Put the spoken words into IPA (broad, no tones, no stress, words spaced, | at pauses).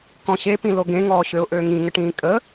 kɔ̃ɕepĩ loɡẽŋɔː ɕøʊ̯ʔøːŋĩ ŋəʈĩːkʼə